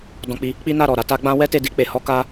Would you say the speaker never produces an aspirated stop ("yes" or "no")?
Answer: yes